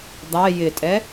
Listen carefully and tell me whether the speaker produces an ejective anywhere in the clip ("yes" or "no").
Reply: yes